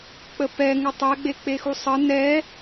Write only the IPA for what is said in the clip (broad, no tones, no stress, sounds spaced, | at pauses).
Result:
k͡p ə p ɛ ŋ ə tˤ ɛ ɡ͡b e k͡p e x u sˤ ə n ɛ